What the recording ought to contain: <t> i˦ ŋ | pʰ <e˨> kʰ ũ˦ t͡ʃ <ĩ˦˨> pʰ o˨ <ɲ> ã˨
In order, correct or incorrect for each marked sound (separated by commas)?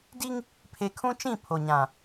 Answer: incorrect, correct, correct, correct